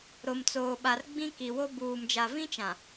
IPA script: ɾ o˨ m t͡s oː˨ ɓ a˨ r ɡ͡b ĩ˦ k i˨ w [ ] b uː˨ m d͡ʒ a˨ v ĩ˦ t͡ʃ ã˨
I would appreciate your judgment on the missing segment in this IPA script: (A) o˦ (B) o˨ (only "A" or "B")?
A